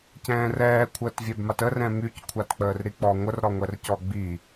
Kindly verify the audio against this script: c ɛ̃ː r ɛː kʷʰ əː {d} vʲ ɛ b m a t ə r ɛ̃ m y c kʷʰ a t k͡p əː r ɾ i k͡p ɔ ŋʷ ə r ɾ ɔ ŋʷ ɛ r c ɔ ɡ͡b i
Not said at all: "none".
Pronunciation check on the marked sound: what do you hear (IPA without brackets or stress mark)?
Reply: t